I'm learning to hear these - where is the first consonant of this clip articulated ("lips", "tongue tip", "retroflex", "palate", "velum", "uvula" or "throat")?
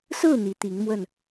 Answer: tongue tip